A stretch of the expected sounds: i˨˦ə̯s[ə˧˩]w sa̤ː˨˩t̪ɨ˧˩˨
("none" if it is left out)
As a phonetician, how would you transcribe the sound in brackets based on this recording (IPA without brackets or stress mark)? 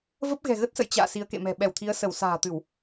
ə˧˩